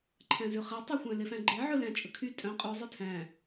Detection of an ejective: present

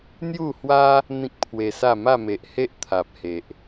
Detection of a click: absent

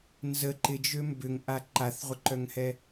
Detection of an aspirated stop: absent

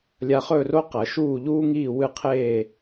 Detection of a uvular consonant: present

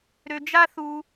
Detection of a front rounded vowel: present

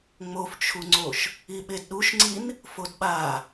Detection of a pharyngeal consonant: absent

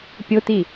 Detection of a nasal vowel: absent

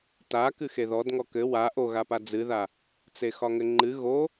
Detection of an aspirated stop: absent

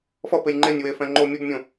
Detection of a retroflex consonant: absent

